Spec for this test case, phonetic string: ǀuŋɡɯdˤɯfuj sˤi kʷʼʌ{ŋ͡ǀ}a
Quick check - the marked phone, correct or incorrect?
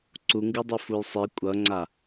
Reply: correct